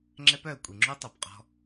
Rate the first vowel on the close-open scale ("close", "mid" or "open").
mid